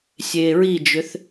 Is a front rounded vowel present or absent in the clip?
present